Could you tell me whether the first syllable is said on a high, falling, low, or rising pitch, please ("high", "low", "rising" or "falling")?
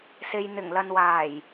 low